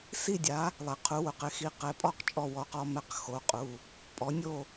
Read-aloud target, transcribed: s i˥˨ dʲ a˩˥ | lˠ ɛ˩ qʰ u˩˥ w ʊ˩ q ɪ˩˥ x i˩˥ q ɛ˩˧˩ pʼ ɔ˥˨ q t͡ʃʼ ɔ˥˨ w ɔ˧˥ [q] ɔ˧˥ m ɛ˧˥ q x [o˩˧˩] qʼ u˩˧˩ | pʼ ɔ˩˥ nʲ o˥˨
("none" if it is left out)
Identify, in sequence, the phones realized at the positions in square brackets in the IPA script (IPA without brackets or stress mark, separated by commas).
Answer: q, o˩˧˩